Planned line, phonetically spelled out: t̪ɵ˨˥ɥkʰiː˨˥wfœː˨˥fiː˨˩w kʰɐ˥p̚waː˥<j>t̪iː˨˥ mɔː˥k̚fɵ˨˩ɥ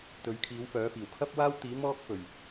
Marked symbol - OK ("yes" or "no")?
no